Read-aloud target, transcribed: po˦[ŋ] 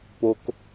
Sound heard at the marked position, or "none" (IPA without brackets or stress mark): k